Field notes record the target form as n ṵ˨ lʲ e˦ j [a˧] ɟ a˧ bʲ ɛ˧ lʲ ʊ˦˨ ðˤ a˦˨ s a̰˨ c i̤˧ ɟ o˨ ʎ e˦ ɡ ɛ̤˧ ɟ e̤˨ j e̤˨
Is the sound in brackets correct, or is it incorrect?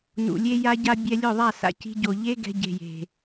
correct